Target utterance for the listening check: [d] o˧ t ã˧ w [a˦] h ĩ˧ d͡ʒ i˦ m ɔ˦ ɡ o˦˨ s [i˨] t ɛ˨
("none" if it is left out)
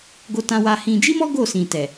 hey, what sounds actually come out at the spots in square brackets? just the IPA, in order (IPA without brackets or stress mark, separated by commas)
ɡ, a˧, ĩ˨